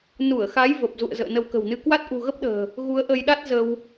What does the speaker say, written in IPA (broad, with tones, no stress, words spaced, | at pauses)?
nu˧˩ə̯xa˨˦j və˨˩p̚zṵ˧˨ə̯ zə̰ː˧˨nə˧wkə̤˨˩wnɨ˧ kwa˦˥t̚ʔṳ˨˩ɣə˦˥p̚ɗə̤ː˨˩ | ɣu˨˦ə̯ʔə˧jɗa˦˥t̚zə˧w